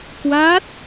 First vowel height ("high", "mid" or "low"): low